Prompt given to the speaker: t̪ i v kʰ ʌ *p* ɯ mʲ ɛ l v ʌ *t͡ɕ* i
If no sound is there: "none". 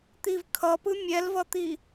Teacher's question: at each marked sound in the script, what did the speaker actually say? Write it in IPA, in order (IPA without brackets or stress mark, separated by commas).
p, t̪